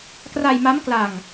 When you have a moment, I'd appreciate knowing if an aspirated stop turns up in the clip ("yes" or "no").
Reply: no